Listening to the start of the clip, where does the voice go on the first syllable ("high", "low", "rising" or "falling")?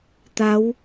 rising